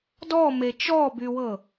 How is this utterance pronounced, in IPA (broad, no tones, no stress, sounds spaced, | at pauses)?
d ɔ m e t͡ʃ ɔ b y w ɤ